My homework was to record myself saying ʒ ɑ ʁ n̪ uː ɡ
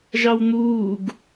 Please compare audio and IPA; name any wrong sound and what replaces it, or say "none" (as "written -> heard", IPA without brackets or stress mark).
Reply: ʁ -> w